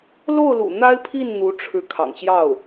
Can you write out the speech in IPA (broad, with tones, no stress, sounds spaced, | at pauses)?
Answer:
l o˥˩ ʊ̯ l ṵ˨˩ n̪ a˥ ɪ̯ pʰ i˥˩ n n̪ u˧˥ ʈ͡ʂʰ ɻ̩˧˥ kʰ ɑ̰˨˩ ŋ ɕ j ɑ˥˩ ʊ̯